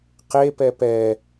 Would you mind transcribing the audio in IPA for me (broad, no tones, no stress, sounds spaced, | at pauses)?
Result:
q e p ɛ p ɛ